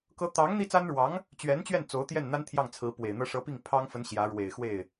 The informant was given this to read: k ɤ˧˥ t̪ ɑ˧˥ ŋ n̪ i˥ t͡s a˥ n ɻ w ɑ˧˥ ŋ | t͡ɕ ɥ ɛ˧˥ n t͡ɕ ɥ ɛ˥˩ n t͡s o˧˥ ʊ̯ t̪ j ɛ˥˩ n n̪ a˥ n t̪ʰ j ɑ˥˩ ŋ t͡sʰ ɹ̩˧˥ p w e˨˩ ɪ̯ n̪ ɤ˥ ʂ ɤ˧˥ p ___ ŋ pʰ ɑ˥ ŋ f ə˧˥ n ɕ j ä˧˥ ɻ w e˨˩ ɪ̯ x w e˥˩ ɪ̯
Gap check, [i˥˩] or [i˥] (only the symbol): i˥˩